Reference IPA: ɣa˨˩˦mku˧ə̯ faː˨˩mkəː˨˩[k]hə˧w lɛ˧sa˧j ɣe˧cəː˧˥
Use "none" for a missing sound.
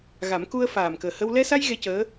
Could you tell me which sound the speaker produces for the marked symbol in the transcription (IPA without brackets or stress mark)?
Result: none